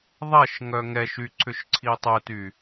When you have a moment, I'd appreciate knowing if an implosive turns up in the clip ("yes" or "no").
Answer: no